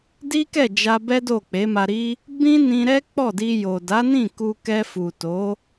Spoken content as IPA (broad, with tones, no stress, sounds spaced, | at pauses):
d i˦ k ɛ˦˨ d͡ʒ a˧ b ɛ˦ d o˦˨ k͡p e˨˦ m a˧ ɾ i˦ | b ĩ˦ n ĩ˧ ɾ ɛ˦ k͡p ɔ˦˨ d i˧ j o˨ d a˨˦ n ĩ˦˨ k u˧ k ɛ˧ f u˨ t o˨˦